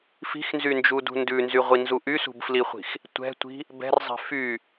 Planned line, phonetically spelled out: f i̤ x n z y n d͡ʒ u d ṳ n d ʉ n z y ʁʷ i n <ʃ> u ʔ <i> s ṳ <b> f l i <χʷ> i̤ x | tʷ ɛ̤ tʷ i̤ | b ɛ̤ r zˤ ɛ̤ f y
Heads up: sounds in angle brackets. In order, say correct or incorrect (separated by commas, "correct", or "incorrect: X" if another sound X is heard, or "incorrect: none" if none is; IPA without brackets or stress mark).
incorrect: z, incorrect: y, correct, correct